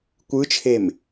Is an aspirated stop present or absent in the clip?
present